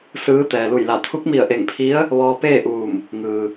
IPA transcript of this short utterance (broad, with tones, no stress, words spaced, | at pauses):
sɯː˧˥ t̪ɛː˩lu˧˩jla˧˩ t̪ʰu˧˥k̚mi˧˩ə̯ ʔe˧˩ŋpʰi˧˥ə̯ | ʋɔː˧peː˥˨ʔuː˧˩m | ŋɯː˩